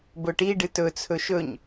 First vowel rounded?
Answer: yes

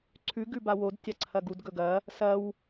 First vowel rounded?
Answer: yes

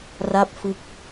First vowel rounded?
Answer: no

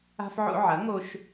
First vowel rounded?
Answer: no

